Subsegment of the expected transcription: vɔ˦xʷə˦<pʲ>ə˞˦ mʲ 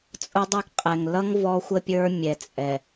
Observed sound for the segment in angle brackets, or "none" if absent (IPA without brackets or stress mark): pʲ